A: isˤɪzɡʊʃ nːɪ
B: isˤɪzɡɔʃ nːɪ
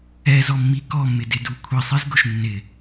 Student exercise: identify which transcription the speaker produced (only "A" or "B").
A